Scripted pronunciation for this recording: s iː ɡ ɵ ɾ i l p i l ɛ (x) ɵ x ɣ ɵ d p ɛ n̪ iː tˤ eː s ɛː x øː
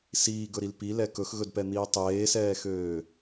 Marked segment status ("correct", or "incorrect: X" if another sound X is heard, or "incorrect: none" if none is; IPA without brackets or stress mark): incorrect: k